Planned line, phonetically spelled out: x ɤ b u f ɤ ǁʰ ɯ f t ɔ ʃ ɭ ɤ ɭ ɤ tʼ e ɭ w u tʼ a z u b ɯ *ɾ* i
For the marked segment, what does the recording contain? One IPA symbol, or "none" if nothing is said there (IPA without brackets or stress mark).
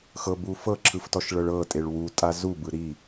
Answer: ɾ